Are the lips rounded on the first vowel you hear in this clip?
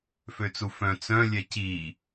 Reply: yes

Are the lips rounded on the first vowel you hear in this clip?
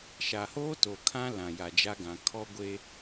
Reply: no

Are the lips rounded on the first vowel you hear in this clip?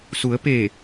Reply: yes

